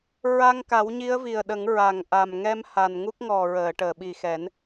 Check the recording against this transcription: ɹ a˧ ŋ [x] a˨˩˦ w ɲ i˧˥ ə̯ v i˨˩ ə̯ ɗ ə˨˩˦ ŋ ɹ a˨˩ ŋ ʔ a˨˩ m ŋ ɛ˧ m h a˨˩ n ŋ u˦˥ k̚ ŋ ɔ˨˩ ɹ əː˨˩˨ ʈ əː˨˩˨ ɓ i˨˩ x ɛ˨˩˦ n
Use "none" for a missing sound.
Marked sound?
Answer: k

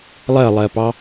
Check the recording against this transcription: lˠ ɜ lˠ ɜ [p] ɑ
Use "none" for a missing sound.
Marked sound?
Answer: p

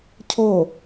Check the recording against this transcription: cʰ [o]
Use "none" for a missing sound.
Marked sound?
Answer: o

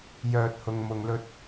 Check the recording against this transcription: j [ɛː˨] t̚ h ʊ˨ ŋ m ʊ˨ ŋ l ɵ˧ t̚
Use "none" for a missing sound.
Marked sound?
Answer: œː˨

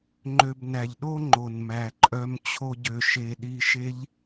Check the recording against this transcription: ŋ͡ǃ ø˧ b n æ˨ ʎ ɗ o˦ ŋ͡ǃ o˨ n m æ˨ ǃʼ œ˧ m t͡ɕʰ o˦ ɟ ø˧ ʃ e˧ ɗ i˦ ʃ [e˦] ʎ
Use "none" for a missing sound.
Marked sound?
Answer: e˦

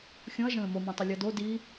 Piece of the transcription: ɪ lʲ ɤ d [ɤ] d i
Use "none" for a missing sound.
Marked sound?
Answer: o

